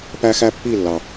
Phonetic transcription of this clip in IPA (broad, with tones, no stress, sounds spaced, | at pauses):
p æ˦ x æ˦ pː i˦˨ lː ɑ˨